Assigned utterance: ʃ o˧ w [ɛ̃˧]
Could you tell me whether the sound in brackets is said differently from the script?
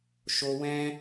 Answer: no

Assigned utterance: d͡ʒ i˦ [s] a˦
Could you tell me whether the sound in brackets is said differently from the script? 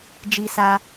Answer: no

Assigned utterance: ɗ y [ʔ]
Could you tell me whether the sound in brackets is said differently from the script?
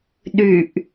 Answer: no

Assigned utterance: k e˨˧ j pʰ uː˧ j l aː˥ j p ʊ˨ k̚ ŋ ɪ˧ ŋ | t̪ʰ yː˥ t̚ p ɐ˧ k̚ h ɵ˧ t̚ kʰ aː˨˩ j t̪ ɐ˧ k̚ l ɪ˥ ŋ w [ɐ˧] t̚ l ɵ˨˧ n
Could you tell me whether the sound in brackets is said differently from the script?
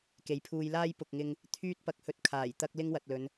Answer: yes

